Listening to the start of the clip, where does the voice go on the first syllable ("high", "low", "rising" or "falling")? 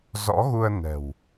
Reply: rising